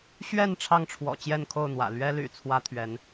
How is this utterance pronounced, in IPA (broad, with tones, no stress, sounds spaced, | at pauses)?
ɕ ɥ ɛ˥˧ n ʈ͡ʂʰ ɑ˥˩ ŋ ʈ͡ʂʰ w ɔ̰˨˩ t͡ɕ j ɛ˥˧ n kʰ o˥˩ ʊ̯ n̪ w ä̰˨˩ l ɥ ɛ˥ l y̰˨˩ t͡sʰ w ä˥ t̪ʰ ɥ ɛ˧˥ n